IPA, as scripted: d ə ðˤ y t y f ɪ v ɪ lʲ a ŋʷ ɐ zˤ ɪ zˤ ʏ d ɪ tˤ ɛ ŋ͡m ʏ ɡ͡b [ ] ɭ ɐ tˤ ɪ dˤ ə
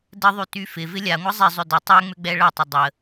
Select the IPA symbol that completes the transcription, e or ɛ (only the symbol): ɛ